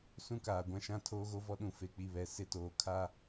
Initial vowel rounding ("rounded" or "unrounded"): rounded